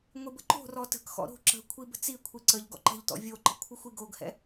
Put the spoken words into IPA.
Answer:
ŋʷibəǃo̤rɔ tə̤kxɔ̰ ɾo̤ ǁə̤kʷʰi bə̤t͡sikʷʰi ǀəʎ ɡɔ̰ǃə̤ʎtɔ̰ vʲoǃə̤ kʷʰɯxʷiɡoɡhɛ̰

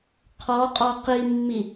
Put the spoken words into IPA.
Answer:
qʰɔqʼɔ qimːi

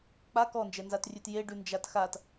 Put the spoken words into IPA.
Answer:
k͡pa kɔnd͡ʒɛnzatrʲʉt jeɖʉnd͡ʒat xat

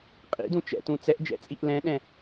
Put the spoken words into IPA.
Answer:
qʼḭdũ t͡ʃɛ̰tũ t͡sɛʔd͡ʒɛ̰t͡sʼiʔ lɛ̃ɗɛ̃

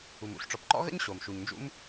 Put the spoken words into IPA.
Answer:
u˩mṵ˥ɬʈ͡ʂɔ˩pǃɔ̰˥ ɣə̰˥ɲɕo˩m ʃu˩ɲnd͡ʒṵ˥m

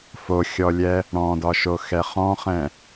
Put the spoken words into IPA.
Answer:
foxʲɔlʲɛ | ɽɔ̃dɒʃoxɛ χɔ̃χɛ̃

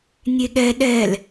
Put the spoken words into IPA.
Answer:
nʲeɠɛ ɗɛl

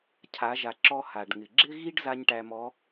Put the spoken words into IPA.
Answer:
cʰa˩˧ʒa˩ǁɔ˧ ha˩ɖŋɪ˩ɡ͡ǁɪ˥ɣi˥ɖ za˥ɲʈæ˧mɔ˧˥

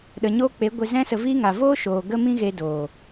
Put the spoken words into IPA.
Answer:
ɗə˨ɲoː˦k͡pe˨˦ɡʷe˧ zɛ̃˧sə˨ viː˦ŋa˨ voː˦ʃoː˨ ɡə˦ mĩ˦ɣe˧doː˨

